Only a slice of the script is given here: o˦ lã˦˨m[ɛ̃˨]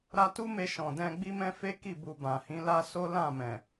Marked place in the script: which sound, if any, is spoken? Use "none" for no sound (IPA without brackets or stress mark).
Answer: ɛ̃˨